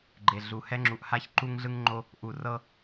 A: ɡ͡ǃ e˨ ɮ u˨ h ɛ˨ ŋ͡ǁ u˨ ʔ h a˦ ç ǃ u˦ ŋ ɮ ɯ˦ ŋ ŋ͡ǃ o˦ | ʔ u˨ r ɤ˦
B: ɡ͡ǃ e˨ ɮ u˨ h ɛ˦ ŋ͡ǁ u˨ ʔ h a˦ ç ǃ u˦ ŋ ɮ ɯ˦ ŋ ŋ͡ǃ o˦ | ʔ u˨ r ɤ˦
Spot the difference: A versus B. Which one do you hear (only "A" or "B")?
B